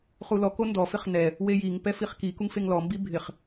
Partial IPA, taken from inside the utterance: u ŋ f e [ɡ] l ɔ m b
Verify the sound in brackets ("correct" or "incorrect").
incorrect